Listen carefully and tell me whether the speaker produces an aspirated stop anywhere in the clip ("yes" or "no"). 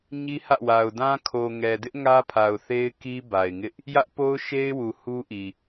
yes